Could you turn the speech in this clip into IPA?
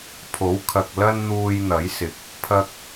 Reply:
pʰo˨˥wkʰɐ˨k̚ lɐ˥nn̪uː˧jn̪ɐ˨˥jsɪ˨˥k̚ | pʰɐ˧k̚

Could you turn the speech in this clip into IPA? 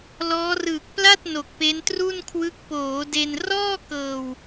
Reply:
lɔː˦˥rɯː˨˩k̚ pla˥˩t̚ no˨˩k̚pe˦˥n tru˥˩nkʰwɯ˦˥k̚ poː˩˦ de˧n rɔː˥˩ kɤː˨˩w

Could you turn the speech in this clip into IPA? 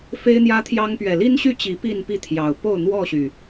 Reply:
fe˦ɪ̯n̪jä˦t̪ʰjɑ˦ŋ pɥɛ˨˩li˦nɕy˥˨ t͡ɕi˨˦ pi˥˨npi˥˨t̪ʰjɑ˨˩ʊ̯ po˥˨ʊ̯n̪wɔ˥˨ɕy˨˩

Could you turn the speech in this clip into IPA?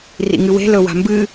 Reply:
rḭŋɨwe̤ lɵwa̤mbɨ

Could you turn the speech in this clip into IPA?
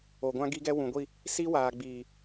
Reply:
o˨ɡʷã˦ ɡi˦ɡɛ˦ wũ˨ɡʷi˦˨ | si˦waː˨ ɡ͡biː˨

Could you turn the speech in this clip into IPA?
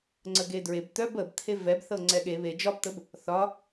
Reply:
ŋ͡ǀəɡedɹeb t̪œb əb t̪ʰevɛb θɤŋ͡ǀɛɠe βe d͡ʒɒbt̪əb | θɒ

